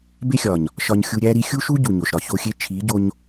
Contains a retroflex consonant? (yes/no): no